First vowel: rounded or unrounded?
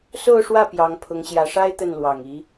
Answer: rounded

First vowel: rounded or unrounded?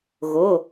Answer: rounded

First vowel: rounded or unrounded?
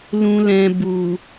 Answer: rounded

